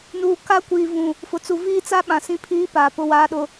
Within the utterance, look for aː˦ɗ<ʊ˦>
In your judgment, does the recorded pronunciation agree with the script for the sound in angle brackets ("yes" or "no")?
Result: yes